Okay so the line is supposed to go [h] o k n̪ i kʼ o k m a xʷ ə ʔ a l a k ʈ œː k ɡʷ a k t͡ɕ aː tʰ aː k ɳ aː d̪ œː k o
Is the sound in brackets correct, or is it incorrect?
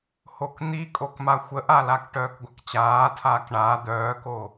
correct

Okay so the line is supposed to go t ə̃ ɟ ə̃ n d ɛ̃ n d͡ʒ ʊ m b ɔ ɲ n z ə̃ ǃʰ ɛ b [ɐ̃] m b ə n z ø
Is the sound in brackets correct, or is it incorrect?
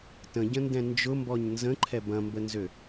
correct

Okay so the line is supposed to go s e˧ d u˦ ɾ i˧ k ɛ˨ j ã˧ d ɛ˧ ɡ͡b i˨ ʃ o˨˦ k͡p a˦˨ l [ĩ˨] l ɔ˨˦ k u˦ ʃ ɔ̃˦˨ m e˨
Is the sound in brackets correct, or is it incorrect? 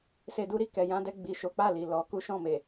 incorrect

